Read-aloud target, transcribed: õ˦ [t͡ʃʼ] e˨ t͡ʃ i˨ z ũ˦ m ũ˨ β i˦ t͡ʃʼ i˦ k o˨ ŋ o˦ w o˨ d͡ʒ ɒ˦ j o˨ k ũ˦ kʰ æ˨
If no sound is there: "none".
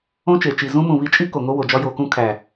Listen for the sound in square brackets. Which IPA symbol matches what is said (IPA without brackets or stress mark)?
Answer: t͡ʃ